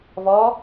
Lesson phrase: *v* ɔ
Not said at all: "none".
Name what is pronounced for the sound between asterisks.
v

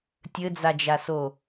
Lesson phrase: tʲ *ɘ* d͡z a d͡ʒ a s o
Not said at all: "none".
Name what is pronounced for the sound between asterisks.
ɘ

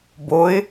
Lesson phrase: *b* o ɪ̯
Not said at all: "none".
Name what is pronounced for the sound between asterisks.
b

